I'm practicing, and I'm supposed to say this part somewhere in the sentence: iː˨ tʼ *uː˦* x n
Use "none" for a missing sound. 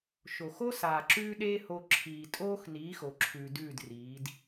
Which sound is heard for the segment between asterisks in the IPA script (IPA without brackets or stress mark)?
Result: oː˦